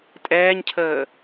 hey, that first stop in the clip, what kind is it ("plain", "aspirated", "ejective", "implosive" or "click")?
ejective